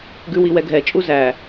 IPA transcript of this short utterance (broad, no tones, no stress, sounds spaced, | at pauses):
ɡ ʉ w i w ɛ ɡʱ ɛ t͡ʃʼ u z æ